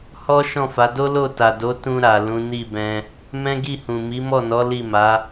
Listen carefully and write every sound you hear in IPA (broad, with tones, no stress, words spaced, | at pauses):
hɔ˦ ʃɔ̃˦˨fa˨˦do˦ lo˦˨ta˨do˨˦ tũ˧ɾa˨ lũ˨˦ni˦˨bɛ̃˧ | mɛ̃˦ɡi˦˨hũ˨ mi˨˦mɔ˦˨nɔ˨˦ li˦˨ma˨˦